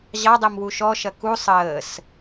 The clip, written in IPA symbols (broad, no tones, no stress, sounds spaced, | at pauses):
ʑ ɑ dˤ e m w u ʃ ɔ ʃ ɐ k u sˤ əː s